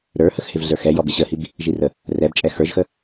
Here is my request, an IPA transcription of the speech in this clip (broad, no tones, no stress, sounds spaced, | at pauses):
ɾ ə˞ h ə x h ɪ v ɮ ə˞ x ɛ j ɔ b ɪ ɕ ə h i b | ʒ i r ə | r ɛ b t͡ʃʼ ɛ x ə˞ ʒ x ə